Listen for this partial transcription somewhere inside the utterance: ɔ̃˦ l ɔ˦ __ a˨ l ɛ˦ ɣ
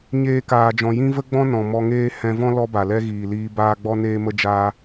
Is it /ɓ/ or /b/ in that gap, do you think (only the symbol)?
b